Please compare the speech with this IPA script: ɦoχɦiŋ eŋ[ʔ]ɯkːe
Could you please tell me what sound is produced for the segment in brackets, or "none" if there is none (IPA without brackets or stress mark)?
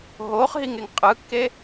qʼ